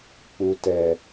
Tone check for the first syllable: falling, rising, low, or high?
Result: low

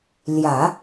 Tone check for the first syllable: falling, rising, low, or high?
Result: low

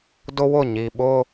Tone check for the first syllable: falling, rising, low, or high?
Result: high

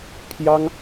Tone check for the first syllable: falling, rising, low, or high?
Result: high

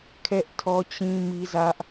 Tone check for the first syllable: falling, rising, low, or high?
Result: high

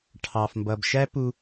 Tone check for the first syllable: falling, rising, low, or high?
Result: low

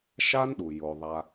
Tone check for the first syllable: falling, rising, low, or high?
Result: high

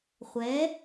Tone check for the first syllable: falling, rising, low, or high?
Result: rising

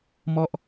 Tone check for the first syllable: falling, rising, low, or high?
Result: falling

